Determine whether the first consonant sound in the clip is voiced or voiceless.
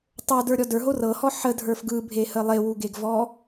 voiceless